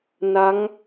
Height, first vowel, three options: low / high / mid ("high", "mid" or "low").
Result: low